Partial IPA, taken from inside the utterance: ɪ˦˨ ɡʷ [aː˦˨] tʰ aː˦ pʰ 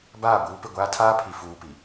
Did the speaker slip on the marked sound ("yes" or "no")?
yes